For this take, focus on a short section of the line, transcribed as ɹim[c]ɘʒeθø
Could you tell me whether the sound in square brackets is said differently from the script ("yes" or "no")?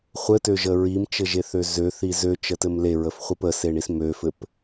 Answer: yes